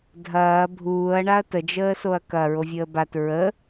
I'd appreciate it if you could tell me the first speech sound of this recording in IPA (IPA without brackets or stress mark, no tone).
dʱ